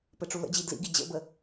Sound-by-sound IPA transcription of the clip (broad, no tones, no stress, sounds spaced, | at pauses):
p ɘ ʈ͡ʂ u l ə̰ d͡ʑ i d l ḭ ɡ i d͡ʑ ə̰ b ə